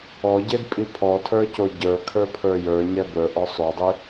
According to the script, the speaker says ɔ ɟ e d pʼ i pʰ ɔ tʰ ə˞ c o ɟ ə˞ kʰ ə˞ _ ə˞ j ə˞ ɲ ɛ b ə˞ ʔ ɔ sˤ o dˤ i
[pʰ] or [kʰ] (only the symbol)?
pʰ